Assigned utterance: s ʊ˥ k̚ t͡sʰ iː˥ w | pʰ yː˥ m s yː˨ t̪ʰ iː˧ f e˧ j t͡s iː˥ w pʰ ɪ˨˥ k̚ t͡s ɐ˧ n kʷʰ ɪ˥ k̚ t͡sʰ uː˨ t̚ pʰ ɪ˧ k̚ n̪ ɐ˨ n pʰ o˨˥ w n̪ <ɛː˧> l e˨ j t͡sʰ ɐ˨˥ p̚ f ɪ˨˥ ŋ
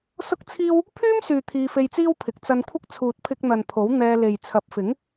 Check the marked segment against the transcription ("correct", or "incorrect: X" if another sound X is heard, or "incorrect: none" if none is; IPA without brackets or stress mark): correct